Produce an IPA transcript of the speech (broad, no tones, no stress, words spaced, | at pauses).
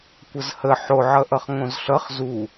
kʷəzhə ħoʕʌʔʌχ ŋõzɬʌχ zu